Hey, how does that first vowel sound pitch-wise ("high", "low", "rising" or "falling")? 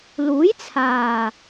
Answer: rising